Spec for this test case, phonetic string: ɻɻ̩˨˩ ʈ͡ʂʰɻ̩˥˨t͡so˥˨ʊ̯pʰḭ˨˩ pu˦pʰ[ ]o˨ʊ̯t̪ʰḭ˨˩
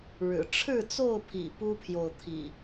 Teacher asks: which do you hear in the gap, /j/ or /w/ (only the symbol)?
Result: j